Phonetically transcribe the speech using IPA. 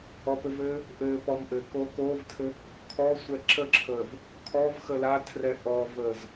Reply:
ɔ p ɘ v ɘː | ʔ ɘ p ɔ m ʔ ɘ k o k o v tʰ ɘ | kʰ ɔ sʷ ɛ ǁ ə ǁʰ əː v | kʰ ɔ v x ə l a tʰ r ɛ ʔ ɔ v əː z

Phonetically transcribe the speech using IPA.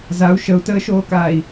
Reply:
z a u̯ ʃ ə u̯ t əː ʃ oː k aː i̯

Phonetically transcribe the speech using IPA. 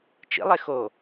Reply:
t͡ʃ ḭ lˠ e x o

